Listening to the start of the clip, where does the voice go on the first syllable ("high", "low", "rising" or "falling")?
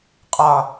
low